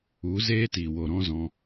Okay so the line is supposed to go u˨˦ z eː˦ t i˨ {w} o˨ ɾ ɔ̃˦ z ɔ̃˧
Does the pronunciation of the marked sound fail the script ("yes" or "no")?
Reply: no